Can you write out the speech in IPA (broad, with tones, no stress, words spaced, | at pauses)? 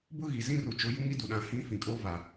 bʊ˦ ɣi˨zĩ˦ ru˨t͡ʃʊ˨˦ ju˦ŋi˦du˨ɗã˨ hĩ˦fĩ˨kʼo˦va˨